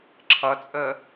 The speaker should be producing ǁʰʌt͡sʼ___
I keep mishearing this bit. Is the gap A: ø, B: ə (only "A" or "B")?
B